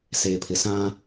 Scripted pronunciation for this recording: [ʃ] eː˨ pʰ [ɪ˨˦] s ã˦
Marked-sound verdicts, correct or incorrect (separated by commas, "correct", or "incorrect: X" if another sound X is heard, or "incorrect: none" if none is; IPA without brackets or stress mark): incorrect: s, incorrect: ɪ˨